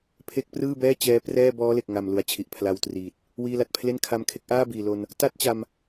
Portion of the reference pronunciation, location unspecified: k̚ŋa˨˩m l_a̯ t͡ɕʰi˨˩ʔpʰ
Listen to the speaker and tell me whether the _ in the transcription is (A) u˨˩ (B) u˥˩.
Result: A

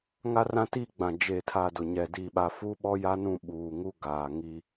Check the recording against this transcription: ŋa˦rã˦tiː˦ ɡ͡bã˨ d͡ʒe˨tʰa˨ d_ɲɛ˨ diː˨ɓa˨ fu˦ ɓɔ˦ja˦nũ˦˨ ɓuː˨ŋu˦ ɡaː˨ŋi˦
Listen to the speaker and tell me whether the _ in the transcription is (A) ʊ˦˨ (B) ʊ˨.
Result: B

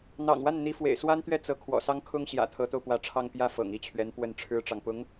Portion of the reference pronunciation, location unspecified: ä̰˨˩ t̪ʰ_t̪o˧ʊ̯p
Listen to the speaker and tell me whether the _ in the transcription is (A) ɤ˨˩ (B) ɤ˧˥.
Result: B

